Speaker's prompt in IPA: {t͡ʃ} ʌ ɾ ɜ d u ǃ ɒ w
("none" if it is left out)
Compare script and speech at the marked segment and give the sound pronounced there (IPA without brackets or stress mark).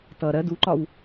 t